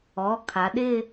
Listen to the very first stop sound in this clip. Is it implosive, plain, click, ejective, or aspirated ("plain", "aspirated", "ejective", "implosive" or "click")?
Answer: aspirated